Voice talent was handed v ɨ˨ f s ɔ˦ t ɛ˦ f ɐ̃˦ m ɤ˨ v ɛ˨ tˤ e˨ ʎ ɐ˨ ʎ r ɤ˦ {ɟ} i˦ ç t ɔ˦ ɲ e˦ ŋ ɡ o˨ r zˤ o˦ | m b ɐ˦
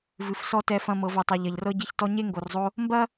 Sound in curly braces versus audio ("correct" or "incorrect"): correct